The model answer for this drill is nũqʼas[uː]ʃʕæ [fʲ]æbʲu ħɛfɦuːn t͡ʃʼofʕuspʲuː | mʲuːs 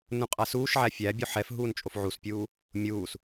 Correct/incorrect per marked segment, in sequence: correct, correct

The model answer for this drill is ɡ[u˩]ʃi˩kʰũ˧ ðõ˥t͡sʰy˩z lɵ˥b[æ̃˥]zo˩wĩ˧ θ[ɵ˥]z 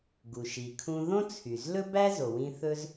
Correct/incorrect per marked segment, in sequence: correct, incorrect: æ˥, correct

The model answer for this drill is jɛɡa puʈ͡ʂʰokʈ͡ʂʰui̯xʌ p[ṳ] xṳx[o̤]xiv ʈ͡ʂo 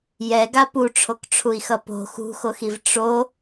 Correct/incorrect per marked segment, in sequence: incorrect: o̤, incorrect: o

